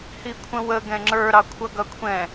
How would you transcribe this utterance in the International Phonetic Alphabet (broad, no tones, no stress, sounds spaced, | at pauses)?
h i kʷʰ ə̃ w ə ɡ ɛ̃ ŋ͡ǁ ə˞ ɾ ɑ kʷʰ ʌ ɡ ʌ kʷʰ ɛ̃